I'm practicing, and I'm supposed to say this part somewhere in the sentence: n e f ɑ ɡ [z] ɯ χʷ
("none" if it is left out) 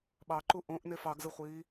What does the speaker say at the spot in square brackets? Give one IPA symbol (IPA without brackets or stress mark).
z